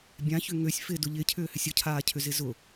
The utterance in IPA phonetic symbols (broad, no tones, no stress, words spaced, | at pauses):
bʲãçʏ ŋøsʲ fɪdʊ ʎɪcʰʏːhʏsʲ ʊcʰaːcʰʏzɪ zʊ